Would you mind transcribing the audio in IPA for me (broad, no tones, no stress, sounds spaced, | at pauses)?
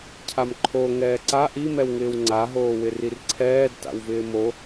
cʰ a m ǃʰ o ŋ ɛː ǀ a ʔ i m ɛ w ŋ ɪː w ŋ͡ǀ a ɦ oː w ɪ r i r ǀʰ ɛː d t a̰ w v ɪː m o